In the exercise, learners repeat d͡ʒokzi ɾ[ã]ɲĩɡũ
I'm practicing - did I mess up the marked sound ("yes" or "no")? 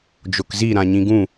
no